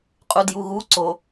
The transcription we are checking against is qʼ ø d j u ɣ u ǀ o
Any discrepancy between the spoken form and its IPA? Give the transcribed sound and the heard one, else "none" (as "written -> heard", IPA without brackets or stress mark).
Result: ø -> u